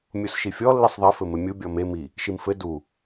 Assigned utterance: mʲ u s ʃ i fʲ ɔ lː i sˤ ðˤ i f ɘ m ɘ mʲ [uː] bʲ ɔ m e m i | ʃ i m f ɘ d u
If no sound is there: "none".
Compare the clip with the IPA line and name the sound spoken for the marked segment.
u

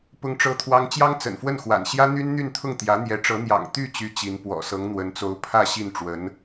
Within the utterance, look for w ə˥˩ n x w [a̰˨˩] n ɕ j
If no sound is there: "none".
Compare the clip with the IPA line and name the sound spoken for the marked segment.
a̰˨˩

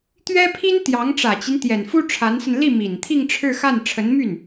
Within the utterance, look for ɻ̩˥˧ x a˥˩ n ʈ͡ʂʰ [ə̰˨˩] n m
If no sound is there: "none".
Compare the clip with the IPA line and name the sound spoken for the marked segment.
ə˧˥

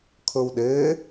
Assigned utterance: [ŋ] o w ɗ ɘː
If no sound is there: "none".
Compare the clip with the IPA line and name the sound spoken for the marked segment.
kʰ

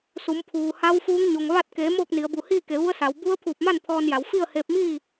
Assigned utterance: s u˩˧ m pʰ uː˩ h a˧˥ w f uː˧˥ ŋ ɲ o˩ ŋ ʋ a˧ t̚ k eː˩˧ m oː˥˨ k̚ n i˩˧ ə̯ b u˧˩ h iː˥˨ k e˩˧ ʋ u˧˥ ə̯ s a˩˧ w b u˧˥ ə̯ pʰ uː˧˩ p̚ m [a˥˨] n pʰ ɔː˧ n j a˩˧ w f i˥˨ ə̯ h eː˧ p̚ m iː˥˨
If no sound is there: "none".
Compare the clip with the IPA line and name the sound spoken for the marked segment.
a˥˨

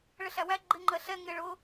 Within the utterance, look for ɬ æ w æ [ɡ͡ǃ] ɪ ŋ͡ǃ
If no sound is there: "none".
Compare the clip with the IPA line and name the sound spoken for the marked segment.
ɡ͡ǃ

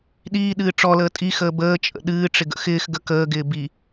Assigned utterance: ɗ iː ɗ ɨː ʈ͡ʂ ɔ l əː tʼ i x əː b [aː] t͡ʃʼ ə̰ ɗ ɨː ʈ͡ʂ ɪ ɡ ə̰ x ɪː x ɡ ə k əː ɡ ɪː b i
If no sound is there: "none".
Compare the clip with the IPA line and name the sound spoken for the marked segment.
əː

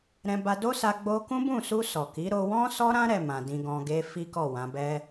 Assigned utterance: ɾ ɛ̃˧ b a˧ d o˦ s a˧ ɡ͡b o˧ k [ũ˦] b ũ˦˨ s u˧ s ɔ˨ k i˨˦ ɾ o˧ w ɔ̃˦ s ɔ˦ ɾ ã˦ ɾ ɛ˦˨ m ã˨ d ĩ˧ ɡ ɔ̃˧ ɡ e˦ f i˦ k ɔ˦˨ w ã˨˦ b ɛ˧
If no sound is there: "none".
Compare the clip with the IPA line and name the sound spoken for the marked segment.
ũ˦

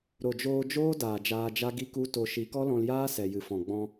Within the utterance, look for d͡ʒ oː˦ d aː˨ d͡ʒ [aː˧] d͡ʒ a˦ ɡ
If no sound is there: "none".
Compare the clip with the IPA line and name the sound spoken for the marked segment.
aː˧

